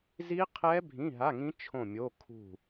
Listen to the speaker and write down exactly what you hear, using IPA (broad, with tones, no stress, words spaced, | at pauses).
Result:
zi˦˥qʰɛ˦˥ bʱĩ˧˥˧ɦa˧˥˧ŋĩ˦˥ t͡ʃʰõ˦˨mʲo˧˥˧kʰṳ˦˨